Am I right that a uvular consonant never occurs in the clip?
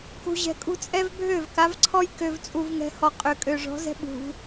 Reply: no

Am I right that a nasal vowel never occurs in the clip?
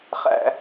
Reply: yes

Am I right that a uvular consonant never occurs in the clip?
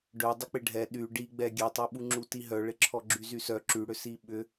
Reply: yes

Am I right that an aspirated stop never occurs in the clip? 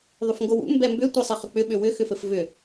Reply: yes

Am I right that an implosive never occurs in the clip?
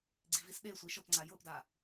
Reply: no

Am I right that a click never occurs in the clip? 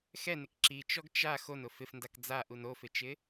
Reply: no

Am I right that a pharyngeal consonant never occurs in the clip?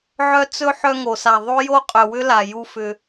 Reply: no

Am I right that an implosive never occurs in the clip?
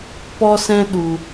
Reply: no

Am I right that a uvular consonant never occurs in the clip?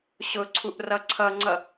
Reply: yes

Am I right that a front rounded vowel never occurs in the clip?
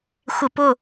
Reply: yes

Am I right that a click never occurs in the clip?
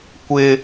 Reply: yes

